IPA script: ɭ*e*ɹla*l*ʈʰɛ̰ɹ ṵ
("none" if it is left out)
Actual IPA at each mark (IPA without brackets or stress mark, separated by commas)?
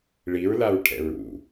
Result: i, ɹ